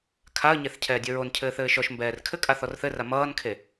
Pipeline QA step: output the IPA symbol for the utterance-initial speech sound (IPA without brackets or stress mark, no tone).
kʰ